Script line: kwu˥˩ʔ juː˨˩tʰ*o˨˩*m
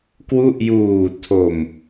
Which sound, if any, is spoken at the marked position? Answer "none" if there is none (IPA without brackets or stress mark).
o˨˩